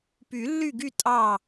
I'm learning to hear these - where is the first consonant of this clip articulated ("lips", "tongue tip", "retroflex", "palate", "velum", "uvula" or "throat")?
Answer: lips